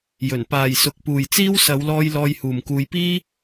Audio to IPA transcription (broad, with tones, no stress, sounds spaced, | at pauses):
j ɵ˨˩ n p aː˨ j s ʊ˨ k̚ p uː˨ j t͡s iː˥ w s ɐ˨˧ w l ɔː˧ j l ɔː˧ j h uː˨ m k uː˧ j p iː˥